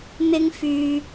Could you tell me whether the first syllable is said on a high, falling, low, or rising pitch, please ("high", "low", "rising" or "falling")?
high